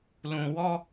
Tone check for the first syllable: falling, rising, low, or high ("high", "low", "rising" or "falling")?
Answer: low